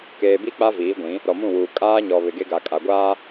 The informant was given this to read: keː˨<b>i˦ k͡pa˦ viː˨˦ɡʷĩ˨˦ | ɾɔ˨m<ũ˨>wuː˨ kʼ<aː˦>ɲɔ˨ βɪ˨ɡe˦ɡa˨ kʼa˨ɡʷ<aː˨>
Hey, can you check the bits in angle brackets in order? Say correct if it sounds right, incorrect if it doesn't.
correct, incorrect: ũ˦˨, correct, incorrect: aː˦

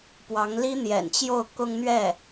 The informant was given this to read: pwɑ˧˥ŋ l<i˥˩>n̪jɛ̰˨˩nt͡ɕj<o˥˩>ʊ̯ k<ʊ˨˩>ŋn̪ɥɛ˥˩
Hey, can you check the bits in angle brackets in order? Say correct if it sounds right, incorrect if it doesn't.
incorrect: i˥, correct, incorrect: ʊ˥

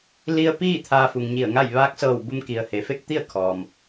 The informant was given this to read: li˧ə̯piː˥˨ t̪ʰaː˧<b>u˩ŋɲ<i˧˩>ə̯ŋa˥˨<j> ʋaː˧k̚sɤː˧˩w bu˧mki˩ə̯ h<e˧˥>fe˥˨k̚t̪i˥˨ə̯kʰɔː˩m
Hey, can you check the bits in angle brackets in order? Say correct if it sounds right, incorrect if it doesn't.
incorrect: f, correct, correct, incorrect: e˩

